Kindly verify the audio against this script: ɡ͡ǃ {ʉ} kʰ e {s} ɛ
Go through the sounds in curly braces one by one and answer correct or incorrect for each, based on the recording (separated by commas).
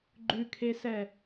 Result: correct, correct